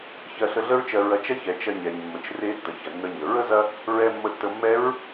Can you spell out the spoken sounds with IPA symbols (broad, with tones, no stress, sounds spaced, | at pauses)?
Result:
ç ɜ˧ ɬ ə˧ ɮ ə˥ ɹ t͡ʃ ɜ˧ ɹ ɐ˧ t͡ʃ ɐ˥ ç ɛ˩ t͡ʃ ɐ˧ ɲ ɛ˩ ɲ mː ə˩ t͡ʃ r e˧˥ tː ə˩ ç ɐ˩ nː ə˧ ɲ ə˩ ɹ ə˥ z ɐ˥ | ɹ ɛ˧ mː ə˧˥ tː ə˧ mː ɛ˧˥ ɹ